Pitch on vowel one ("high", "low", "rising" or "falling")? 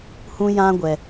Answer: high